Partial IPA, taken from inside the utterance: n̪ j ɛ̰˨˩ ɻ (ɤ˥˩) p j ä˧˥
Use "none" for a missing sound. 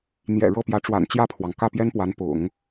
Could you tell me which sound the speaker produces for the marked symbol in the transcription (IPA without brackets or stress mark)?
ɤ˥˩